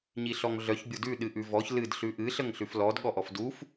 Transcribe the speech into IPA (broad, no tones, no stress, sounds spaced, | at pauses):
ɲ i ɬ ɔ ŋ ɮ œ ç bʲ ʊ d ʉ ɗ ɨ ʔ ʉ v ɔ ç l ɨ d ɬ ʉ ʔ ɨ ɬ ə ŋ ɬ ʉ f l ɔ d ɠ ɔ ʔ ɔ f d u f